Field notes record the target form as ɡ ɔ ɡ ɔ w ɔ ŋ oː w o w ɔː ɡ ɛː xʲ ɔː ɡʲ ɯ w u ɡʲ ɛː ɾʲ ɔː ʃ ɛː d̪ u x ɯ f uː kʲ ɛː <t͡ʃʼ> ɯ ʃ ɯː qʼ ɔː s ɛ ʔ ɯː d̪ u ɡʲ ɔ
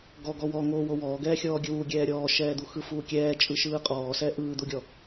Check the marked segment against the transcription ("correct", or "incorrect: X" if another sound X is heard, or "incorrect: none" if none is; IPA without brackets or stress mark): correct